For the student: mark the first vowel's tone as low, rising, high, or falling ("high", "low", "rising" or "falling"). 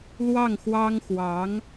falling